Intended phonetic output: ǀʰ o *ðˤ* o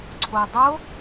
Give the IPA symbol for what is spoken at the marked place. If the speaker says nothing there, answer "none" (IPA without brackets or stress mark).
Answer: dˤ